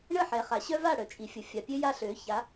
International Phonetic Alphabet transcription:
ɳ ə˦˨ ħ ɛ˨ χ a˨ ɕ œ˦ v a˦˨ ɽ œ˨ t͡ʃʼ i˨ fʲ ə˨ fʲ a˨ pʲ ø˦ j a˦ ɬ ø˨˦ ç a˨˦

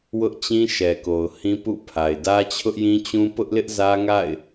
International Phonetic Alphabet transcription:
w ʊ˦ ʔ t͡ɕ ĩ˦ ʃ ɛ˨ k o˨ ʊ̯ h ĩ˦ p ṵ˦˨ pʰ a˨ ɪ̯ d ä˦ t͡ɕʰ ʊ˦ ʔ j ĩ˦ t͡ɕ ũ˦ p ʊ˦ ʔ l ɪ˦ ʔ z ä˦ ŋ a̰˦˨ ɪ̯

